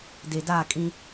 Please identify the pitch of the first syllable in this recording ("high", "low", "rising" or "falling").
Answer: low